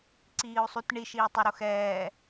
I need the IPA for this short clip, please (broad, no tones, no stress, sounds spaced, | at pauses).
ǀ iː u̯ sˤ u t ɳ i ʃ iː tˤ ɛ ɾ o x ɛː